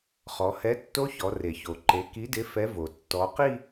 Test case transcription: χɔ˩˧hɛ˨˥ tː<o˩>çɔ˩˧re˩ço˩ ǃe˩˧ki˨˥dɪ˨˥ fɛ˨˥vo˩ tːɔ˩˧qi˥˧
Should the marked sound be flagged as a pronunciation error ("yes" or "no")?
yes